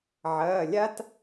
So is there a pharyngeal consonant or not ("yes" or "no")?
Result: yes